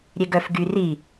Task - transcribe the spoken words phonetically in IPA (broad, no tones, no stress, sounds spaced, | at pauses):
ɾʲ e ɡ œ f ɡ y r i